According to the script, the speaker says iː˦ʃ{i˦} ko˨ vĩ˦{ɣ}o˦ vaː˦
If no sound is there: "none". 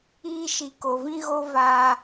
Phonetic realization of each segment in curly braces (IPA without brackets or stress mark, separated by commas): i˨, ɣ